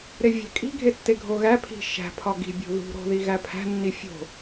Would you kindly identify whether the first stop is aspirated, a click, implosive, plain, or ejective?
ejective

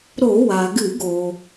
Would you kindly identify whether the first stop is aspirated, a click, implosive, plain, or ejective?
plain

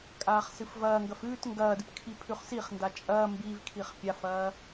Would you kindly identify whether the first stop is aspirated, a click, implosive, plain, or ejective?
ejective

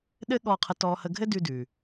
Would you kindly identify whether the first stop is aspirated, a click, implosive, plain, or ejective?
implosive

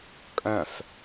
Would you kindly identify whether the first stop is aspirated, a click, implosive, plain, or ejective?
ejective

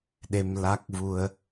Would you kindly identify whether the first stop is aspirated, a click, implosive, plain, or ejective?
implosive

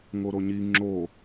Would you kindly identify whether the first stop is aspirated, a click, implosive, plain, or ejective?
click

